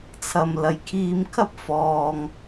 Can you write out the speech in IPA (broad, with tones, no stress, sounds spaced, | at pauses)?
t͡sʰ ɐ˨ m l ɐ˨ j kʰ iː˧ m kʰ ɐ˥ p̚ f ɔː˨ ŋ